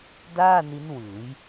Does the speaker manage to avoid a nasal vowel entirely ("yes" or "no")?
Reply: yes